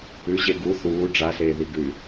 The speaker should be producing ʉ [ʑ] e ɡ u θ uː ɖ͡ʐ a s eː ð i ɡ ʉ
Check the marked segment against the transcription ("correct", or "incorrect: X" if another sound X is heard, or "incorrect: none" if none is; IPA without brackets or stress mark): correct